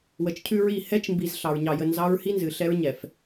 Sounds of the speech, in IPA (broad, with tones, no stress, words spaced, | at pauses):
wə˨t͡ʃcʰʉ˦ɹi˦˨ hɛ˦t͡ʃmbi˨z ɬɑ˨ɹɲɑ˨jə˨ nzɑ˦ɹhi˦nzɨ˨ ɬɛ˦ɹ ɲɛ˨f